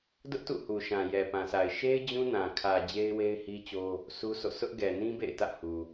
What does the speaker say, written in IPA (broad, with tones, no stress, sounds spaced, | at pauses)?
d ʊ˦ ʔ t ṵ˦˨ h u˨ ʃ ã˨ j ɛ˨ p ã˨ sʰ a˨ ɪ̯ ʃ e˦ ɪ̯ d͡ʑ ũ˦ n ã˨ kʰ ä˨ d͡ʑ e˦ ɪ̯ w e˦ ɪ̯ h i˦ t͡ɕ o˦ | s u˦ sʰ o̰˦˨ sʰ ʊ˦ ʔ ɡ ɛ˨ n ĩ˦ b ḛ˦˨ ɪ̯ t ä̰˦˨ h u˨